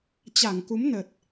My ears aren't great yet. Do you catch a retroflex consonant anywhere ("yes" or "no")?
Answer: no